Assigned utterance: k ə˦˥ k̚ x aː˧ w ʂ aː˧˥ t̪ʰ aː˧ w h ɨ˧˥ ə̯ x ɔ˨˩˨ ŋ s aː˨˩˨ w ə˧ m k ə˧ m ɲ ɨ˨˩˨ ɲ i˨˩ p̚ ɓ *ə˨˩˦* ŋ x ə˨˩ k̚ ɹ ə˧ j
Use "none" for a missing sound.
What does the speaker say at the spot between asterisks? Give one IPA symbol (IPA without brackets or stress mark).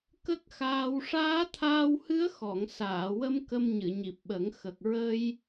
ə˨˩˦